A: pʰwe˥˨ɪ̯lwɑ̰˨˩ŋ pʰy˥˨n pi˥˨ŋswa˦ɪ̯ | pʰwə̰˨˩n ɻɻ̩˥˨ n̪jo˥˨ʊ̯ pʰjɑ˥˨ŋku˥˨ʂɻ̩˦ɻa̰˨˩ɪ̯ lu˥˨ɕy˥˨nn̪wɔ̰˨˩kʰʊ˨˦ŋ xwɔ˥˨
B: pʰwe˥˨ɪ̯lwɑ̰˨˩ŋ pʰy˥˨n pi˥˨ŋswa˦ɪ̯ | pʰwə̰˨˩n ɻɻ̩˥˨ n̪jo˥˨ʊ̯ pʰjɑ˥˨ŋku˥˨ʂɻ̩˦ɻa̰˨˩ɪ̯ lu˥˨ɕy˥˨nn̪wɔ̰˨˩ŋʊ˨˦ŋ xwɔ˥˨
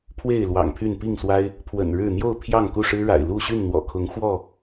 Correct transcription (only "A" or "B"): A